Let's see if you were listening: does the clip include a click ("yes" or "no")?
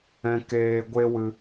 no